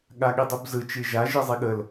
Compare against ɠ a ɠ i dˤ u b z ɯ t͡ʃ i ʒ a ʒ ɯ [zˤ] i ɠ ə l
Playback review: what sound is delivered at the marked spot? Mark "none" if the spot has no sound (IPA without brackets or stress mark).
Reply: zˤ